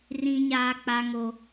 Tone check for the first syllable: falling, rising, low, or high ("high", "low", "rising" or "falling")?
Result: high